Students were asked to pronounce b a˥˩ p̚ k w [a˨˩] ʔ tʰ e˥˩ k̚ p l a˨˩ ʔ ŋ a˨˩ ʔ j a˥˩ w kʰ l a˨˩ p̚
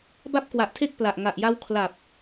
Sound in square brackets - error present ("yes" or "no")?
no